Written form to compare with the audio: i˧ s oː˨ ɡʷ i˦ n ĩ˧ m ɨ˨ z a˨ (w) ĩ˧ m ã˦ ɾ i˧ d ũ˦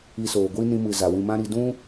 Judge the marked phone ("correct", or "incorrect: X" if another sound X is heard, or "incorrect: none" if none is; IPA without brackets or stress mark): correct